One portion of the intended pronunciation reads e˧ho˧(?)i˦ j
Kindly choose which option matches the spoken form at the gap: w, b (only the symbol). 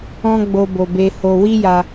w